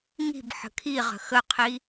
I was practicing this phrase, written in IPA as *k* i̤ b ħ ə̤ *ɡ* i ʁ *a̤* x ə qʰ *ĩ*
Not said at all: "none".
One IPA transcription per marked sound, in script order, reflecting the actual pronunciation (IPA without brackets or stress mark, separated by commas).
ŋ, kʰ, ə̤, i